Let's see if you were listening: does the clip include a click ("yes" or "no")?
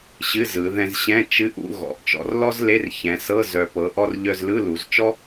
no